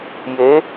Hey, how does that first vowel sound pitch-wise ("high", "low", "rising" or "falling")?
rising